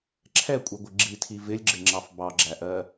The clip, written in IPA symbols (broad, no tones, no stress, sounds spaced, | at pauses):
ǁʰ ɛ kʷʼ i ɡʷ ɪ ɡ͡ǁ i tʰ i v ɪ lʲ ɡ͡ǁ ɪ ŋ͡ǁ ɑ f b ɑ ɡ͡ǁ æ ʔ ɜ